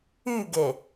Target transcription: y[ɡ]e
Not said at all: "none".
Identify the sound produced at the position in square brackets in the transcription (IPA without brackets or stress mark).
ɡ